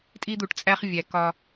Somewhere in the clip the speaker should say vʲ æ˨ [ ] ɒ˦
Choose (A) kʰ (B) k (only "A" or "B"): B